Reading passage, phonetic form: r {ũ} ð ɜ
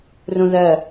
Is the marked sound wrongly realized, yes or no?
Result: no